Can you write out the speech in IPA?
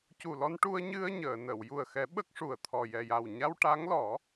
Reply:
cu˨˩lɔ˧nʈu˧ə̯ ɲɨ˧ə̯ ɲəː˨˩˨nə˨˩˨w ju˨˩ə̯xɛ˨˩˦ ɓə˦˥k̚ʂu˨˩ə̯t̪ʰɔ˨˩ jɛ˨˩ja˨˩wɲa˧w ʈa˧˥ŋlɔ˨˩˦

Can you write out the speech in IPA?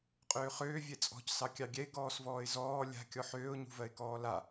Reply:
qʼøːχøː vʲɛt͡sʼɔ̤csɑ kʲɑɡʲɛɪ̯ ɡɔːsvɔːɪ̯zɔː lʲa̤ kʲɔħøːʊ̯ɲṳvɜɪ̯ kɔːla

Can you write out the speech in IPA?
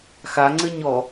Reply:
xaŋ͡ǀɘɲɔ

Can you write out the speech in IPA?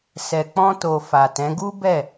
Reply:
sɛ˨k͡pɔ̃˧to˨ fa˨tɛ̃˨˦ ɡu˦bɛ˦˨

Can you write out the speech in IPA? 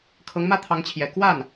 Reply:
kʰɤ˧˥ŋmä˥t̪ʰɑ˧˥ŋt͡ɕʰjɛ˨˩ kwa˥˩n

